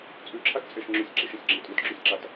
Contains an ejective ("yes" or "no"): yes